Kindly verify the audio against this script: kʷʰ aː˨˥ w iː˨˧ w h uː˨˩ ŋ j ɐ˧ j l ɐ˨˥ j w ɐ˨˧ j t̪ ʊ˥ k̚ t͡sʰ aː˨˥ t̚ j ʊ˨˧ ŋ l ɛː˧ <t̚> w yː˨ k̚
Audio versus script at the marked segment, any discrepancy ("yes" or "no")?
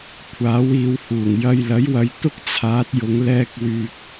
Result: yes